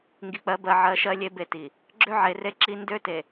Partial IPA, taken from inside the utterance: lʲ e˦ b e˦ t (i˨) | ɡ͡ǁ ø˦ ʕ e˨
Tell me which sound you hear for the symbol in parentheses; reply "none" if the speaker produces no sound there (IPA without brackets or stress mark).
i˨